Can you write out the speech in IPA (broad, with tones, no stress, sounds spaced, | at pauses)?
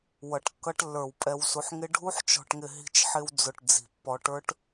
w ʌ˨ ʈ kː ʌ˦ ʈ lː ə˞˨ w pʼ ɛ˨ w s u˨ ħ ŋ ɪ˦ ɖʱ u˦ ħ t͡ʃ ɔ̤˨ ʈ ŋ ɪ˨ ɦ i̤˨ t͡ʃ ħ ɪ˨ w d͡z ʊ˨ ʈ d͡z i̤˨ pː ɔ˨ ʈ ə˞˦ ʈ